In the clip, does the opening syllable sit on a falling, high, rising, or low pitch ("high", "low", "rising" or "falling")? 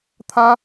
high